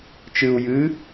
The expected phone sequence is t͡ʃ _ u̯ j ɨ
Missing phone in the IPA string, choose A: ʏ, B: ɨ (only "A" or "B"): B